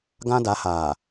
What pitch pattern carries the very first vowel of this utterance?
high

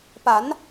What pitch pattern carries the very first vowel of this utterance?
rising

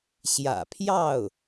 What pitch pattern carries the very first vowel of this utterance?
low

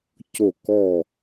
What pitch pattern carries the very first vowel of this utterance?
falling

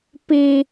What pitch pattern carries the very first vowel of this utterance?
high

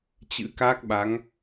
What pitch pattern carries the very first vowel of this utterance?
rising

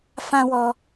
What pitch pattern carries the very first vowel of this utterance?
high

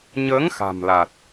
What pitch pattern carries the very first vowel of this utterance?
rising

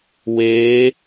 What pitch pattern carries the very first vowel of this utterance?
rising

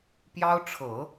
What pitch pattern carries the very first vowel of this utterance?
high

